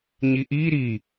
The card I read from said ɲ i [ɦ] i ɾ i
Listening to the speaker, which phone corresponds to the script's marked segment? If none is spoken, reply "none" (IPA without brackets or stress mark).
ʔ